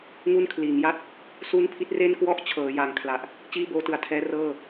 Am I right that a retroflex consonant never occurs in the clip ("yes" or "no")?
yes